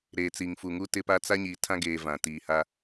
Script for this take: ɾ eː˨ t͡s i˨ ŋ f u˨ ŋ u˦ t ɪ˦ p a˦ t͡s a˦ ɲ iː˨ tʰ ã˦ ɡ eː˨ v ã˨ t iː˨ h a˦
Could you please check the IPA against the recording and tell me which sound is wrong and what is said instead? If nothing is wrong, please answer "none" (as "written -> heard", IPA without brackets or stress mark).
none